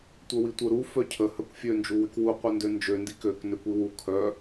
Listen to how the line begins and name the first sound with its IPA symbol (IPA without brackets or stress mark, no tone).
tʷ